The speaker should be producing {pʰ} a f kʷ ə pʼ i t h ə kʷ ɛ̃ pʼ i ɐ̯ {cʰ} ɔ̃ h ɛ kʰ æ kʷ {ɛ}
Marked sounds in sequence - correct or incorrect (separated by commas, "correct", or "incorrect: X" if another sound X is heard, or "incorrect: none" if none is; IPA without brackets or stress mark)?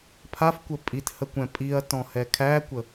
correct, incorrect: t, incorrect: ə